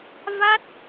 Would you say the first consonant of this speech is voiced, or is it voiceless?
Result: voiced